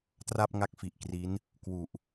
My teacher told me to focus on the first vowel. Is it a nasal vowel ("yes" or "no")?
no